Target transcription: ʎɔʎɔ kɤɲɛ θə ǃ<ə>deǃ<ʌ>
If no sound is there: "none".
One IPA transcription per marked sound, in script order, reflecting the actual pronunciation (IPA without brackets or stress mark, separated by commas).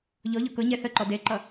ɔ, ʌ